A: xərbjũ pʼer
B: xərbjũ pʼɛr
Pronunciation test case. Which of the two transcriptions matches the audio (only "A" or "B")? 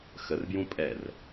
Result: B